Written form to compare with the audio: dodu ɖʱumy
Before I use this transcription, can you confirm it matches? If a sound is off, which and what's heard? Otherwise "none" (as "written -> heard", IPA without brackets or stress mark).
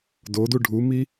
y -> i